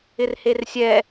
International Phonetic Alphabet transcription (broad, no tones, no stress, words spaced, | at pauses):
ɪrhersʲɛ